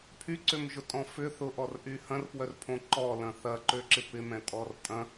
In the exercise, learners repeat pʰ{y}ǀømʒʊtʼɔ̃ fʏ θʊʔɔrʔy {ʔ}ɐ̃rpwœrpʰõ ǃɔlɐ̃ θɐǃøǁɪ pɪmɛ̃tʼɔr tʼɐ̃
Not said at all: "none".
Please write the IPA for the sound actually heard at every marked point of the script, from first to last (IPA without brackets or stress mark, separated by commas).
y, h